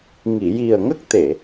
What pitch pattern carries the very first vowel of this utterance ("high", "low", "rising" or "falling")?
low